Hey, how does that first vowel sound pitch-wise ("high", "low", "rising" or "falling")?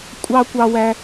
high